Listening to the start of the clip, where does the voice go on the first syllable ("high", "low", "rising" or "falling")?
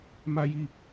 high